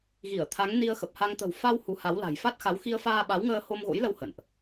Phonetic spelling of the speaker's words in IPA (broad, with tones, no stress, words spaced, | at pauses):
ɣi˧˩ə̯t̪ʰa˨˦ŋ ni˧ə̯xə˨˩p̚ha˧ŋ t̪ə̤˨˩wfa˧w hu˨˦ha˨˦wla̤˨˩j fa˦˥t̚xa˨˦w xi˧ə̯faː˧ɓa˨˦wŋəː˧ ho˧mɣo̰˧˥jlə˧w hə̰˧˨nʔ